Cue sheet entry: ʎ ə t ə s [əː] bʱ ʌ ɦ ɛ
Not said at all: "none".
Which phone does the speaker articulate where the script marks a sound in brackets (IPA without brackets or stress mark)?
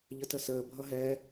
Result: əː